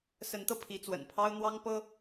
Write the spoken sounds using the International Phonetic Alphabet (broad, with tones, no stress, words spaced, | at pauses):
sə˧˥nt̪ɤ˧ pʰi˧˥t͡swə̰˨˩npʰɑ˥ʊ̯ n̪wɑ˥ŋ pɤ˥